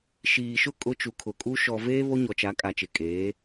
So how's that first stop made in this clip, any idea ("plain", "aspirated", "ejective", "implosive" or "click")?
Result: ejective